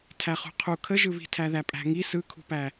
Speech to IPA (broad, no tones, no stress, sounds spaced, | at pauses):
tʰ æ χ ṳ qʰ u kʰ ə ʒ ɯ β i̤ tʰ æ ð æ pʼ æ̤ ŋ i s ɯ kʰ ṳ p æ